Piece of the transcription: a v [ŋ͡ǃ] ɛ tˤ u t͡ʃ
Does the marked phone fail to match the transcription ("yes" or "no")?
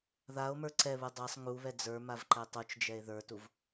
yes